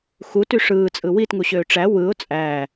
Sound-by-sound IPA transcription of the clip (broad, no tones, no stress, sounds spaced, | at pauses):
x u t y ʂ ɯː t͡sʼ ɯ w i t ŋ u ɕ øː ʈ͡ʂ æ w ɯ ʊ̯ t͡sʼ æː